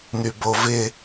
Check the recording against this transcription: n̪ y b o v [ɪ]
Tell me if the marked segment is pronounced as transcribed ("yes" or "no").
yes